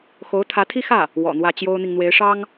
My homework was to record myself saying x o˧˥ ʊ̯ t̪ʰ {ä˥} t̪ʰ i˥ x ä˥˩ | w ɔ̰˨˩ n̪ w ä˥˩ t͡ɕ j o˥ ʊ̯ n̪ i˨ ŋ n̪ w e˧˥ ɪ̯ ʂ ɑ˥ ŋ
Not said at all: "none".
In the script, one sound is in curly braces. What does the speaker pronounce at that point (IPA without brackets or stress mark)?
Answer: ä˧˥